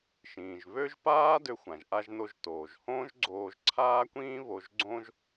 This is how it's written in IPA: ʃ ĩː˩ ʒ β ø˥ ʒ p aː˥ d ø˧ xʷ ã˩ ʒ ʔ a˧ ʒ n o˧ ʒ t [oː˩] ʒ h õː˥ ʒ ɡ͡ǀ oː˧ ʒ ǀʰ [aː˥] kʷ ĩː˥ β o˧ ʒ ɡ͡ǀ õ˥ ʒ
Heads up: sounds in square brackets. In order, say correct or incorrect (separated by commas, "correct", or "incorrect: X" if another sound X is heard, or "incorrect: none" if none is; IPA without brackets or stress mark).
correct, correct